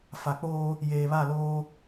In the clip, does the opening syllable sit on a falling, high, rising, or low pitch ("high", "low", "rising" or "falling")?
low